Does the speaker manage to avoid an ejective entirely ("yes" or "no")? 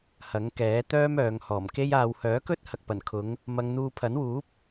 yes